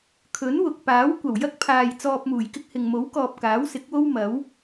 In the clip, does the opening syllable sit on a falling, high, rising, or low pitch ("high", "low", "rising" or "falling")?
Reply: rising